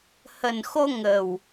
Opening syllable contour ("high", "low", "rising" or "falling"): low